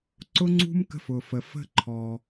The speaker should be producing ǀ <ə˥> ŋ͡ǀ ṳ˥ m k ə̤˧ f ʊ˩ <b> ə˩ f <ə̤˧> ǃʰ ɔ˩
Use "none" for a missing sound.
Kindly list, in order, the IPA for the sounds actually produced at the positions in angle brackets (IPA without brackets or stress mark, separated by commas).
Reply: ʊ˥, f, ə̤˧